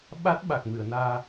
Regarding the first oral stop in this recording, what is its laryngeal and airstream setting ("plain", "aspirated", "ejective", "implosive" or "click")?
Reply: implosive